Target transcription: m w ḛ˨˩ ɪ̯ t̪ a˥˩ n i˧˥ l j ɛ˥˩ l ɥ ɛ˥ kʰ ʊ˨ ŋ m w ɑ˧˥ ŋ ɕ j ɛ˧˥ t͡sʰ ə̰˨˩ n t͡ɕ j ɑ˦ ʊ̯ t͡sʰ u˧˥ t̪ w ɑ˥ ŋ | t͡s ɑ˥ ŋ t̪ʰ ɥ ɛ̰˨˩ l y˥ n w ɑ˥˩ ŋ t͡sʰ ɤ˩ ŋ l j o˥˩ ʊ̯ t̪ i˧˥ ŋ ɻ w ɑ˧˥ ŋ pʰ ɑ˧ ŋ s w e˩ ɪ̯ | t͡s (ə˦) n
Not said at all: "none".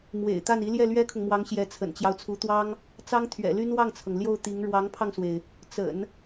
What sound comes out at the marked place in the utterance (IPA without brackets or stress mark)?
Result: ə̰˨˩˦